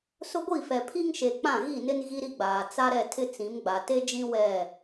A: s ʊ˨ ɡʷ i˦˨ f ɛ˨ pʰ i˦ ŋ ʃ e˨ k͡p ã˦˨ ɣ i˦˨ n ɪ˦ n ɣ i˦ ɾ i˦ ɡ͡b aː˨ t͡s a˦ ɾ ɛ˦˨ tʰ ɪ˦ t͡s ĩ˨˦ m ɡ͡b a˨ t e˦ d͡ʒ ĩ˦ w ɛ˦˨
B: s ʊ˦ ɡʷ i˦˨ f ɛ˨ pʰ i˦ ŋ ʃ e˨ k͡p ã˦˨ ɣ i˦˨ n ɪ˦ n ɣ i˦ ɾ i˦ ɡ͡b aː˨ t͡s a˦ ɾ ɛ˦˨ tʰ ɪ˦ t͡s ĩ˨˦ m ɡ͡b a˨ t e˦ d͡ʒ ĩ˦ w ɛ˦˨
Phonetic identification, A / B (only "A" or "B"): B